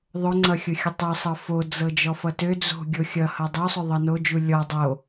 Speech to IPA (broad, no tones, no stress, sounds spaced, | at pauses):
ðˤ ʊ ŋ͡ǀ ʌ xʲ ʊ xʲ ʊ tˤ ɤ sˤ ɤ f o d͡z ɤ d͡ʒ ɔ f ʌ t ø d͡z o̤ ɡʲ o xʲ ʌ h ʌ dˤ u sˤ ø ðˤ ɤ n o d͡ʒ u lʲ ɔ dˤ o